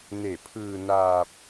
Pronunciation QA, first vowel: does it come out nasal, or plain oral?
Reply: oral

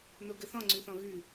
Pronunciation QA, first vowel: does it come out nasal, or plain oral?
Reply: oral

